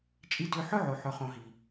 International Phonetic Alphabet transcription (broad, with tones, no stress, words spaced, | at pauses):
t͡ʃʼi˧dø˧ħɵ˦ʕo˨ ħɵ˨χõ˨ɦi˨